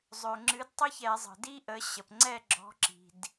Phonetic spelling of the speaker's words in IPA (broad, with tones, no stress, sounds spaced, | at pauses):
zˤ ø˩ ŋ͡ǁ ɨ˨˦ d tˤ ɘ˥ ç ɛ˧˩˧ zˤ ə̤˩ d i˥ ʔ ə˨˦ ɕ ə˩ p ŋ͡ǀ ɛ˦˨ ɡ͡ǁ ɔ̤˨˦ ǁ i̤˩ d